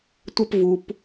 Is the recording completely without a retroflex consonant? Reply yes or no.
yes